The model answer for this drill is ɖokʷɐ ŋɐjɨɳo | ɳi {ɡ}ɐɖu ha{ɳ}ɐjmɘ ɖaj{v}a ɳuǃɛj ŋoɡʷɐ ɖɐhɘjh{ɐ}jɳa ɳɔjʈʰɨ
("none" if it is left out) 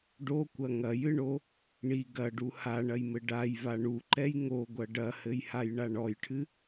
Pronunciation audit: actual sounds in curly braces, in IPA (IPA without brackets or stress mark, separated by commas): ɡ, ɳ, v, a